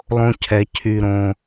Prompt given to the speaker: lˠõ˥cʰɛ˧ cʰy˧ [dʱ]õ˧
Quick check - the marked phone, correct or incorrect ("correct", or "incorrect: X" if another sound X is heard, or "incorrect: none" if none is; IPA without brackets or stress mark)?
incorrect: ɾ